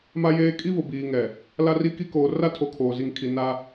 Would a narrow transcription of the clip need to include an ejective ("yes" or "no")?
yes